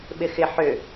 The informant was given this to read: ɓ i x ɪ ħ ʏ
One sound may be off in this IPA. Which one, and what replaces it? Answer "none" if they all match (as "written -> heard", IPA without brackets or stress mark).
i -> ɪ